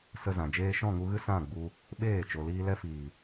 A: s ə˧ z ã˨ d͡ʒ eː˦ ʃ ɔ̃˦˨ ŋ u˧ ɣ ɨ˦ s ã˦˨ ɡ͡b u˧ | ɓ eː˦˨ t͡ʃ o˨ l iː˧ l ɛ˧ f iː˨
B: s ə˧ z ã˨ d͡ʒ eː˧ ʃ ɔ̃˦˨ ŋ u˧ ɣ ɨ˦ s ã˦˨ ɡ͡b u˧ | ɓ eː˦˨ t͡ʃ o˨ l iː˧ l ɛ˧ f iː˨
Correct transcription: B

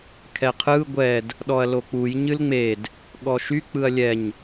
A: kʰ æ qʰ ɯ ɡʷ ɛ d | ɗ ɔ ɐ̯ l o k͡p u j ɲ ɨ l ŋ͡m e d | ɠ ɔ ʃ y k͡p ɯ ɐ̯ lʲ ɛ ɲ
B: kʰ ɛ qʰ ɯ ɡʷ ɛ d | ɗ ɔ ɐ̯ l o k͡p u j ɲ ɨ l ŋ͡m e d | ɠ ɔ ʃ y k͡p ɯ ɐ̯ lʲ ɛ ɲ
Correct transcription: B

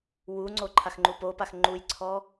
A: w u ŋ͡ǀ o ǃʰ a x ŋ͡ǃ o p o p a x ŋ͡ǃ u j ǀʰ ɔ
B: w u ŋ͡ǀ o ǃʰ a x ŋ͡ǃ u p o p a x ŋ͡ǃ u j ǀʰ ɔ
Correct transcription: B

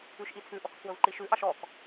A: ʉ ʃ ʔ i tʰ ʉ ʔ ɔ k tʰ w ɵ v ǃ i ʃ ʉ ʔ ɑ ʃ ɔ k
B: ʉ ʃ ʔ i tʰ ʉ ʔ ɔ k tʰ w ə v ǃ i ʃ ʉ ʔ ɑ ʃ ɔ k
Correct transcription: A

